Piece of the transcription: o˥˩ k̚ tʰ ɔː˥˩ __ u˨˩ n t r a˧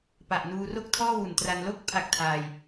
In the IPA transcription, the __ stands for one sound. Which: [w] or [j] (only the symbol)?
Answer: w